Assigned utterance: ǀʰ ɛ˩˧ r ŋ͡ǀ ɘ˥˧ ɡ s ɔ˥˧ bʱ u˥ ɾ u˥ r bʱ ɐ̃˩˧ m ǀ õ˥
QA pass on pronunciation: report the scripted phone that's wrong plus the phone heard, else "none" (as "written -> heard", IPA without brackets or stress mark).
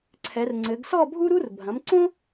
ɘ˥˧ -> ɘ˩˧